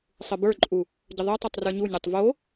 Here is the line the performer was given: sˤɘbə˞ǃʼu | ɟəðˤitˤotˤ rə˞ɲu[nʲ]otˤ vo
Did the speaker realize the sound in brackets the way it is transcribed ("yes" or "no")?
yes